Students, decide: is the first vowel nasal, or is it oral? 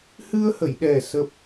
oral